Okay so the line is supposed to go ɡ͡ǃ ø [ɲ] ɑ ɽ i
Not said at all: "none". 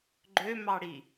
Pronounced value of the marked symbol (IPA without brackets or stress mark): m